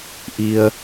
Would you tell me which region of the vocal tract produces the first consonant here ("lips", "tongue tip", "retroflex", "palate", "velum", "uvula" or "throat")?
throat